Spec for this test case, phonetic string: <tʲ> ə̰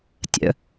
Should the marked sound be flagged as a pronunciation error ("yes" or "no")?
no